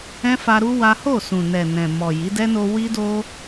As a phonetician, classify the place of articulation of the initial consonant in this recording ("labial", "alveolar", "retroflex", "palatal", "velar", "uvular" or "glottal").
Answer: labial